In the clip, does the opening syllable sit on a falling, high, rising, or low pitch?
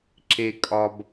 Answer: low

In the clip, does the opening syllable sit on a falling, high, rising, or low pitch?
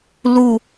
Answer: falling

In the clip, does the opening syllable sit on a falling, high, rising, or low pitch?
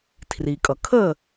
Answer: low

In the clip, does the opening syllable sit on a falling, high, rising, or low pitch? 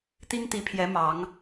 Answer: high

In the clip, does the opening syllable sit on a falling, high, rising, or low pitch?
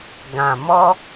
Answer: low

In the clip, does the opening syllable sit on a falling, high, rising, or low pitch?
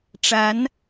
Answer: rising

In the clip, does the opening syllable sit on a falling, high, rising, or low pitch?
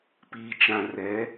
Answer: low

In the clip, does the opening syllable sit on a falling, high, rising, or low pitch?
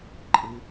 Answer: low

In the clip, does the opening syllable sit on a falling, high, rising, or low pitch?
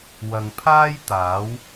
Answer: low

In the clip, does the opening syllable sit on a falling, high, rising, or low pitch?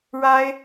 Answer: high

